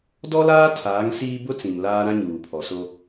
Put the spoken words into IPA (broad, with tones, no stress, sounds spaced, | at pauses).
d ɔ˦ l aː˦ tʰ aː˨˦ ŋ s iː˦ b ʊ˦ t͡s ĩ˨ m l aː˦ ɾ ã˦ ɲ uː˨ pʰ ɔ˨ s o˦